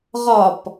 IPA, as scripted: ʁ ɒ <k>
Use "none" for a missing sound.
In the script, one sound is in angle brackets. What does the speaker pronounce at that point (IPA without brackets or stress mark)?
p